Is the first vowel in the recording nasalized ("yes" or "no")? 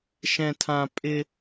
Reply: yes